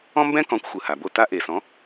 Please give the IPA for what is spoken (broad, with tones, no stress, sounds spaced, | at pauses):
ɔ̃˥ m b ɛ̃˥ k ɔ̃˩˥ kʷ xʷ ɯ˩ h a˩ b o˥˩ t a˥ ʔ e˩ s ɔ̃˩˥